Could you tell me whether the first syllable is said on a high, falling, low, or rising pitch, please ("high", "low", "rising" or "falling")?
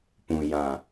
low